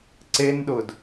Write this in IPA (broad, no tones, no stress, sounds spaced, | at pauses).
ǀ e n ɗ ʊ d